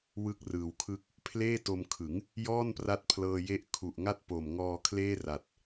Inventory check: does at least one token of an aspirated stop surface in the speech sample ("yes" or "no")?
yes